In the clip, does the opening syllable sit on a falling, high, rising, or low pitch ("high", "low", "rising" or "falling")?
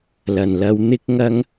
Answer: low